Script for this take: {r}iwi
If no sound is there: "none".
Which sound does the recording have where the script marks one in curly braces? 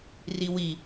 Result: r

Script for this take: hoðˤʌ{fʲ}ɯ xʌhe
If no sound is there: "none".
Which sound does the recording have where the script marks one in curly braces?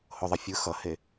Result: fʲ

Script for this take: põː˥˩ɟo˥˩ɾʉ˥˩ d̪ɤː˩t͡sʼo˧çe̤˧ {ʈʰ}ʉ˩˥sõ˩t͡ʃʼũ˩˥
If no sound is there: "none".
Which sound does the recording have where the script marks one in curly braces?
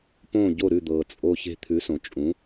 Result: t̪ʰ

